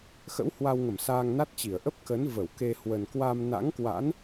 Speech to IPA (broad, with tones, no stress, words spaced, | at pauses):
xə̰˧˥whwa˧wŋə˧˩m saː˧ŋna˦˥t̚t͡ɕi˧˩ə̯ ʔə˦˥p̚kə˨˦nvə˧˩w ke˧ hwə˨˩nkwa˧mna̰˧˥ŋkwa̰˧˥n